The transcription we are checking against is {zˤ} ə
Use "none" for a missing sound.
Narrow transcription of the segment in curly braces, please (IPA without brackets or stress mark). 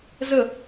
z